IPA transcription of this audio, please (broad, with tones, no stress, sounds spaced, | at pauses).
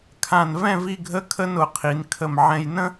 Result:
kʰ ã˧˩ n v ɛ̃˥˧ v i˥˧ ɡʱ ə˥ kʰ ə˥ n ʊ˩˧ qʰ i˩˧ n kʰ ə˧˩ m ʕ ɛ̃˧ j n ə̃˥